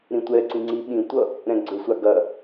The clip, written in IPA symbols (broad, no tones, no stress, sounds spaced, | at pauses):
ɾ ĩ tʷ ɛ ǀ ĩ ŋ͡ǀ i ɓ ĩ tʷ ʌ | ɾ ɛ̃ ɡ͡ǀ ɵ sʷ a ɡ ɐ